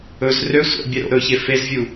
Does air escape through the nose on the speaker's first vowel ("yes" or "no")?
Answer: no